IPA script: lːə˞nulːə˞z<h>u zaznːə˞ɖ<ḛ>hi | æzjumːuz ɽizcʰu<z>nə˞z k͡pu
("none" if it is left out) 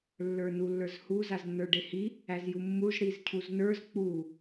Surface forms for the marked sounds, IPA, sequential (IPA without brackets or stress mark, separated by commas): h, e, z